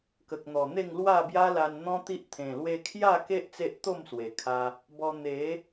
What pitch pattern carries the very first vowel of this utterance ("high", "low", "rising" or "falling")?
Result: low